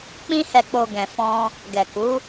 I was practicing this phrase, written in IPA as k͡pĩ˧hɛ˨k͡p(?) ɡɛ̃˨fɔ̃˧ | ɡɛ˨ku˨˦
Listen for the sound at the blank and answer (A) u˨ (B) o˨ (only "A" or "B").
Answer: B